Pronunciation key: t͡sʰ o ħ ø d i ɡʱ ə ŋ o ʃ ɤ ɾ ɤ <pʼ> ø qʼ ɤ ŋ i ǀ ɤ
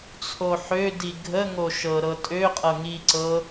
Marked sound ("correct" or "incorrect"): incorrect